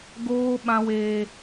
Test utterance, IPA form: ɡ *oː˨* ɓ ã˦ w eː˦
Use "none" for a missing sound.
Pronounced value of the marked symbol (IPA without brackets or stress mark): oː˦